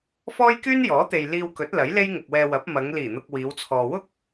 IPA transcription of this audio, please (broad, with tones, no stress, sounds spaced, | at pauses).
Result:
f ɔː˥ j k yː˥ n j ɔː˨˥ t̪ e˨ j l iː˧ w k ɵ˨˥ t̚ l ɐ˨˥ j l e˥ j ŋ ʊ˨ k̚ w ɛː˧ w ɐ˨˥ p̚ m ɐ˨˧ ŋ l iː˨˩ n̪ ʊ˨ k̚ w iː˨˧ w t͡sʰ ɔː˨ w ʊ˥ k̚